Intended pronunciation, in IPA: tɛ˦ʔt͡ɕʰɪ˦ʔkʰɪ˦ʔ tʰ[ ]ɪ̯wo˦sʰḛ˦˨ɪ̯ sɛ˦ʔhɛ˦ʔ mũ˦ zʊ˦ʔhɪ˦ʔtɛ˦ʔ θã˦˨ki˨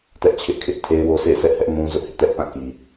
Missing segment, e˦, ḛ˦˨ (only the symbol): e˦